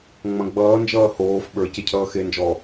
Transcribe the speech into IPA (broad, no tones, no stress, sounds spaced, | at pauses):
ŋ͡m ɐ̃ ɡ͡b ʌː n d͡ʒ ʌː h oː f ɓ ə˞ c e cʰ ʌː x e n d͡ʒ ɔː